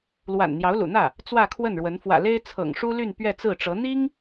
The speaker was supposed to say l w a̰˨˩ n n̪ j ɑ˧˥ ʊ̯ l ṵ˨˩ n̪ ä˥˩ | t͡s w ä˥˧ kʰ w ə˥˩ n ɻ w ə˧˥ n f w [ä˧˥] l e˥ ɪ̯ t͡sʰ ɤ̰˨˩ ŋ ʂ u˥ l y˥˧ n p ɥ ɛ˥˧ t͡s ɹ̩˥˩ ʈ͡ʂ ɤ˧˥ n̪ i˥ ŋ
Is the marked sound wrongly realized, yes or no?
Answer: yes